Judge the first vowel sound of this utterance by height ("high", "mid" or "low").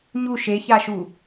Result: high